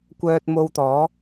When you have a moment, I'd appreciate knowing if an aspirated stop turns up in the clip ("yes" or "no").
no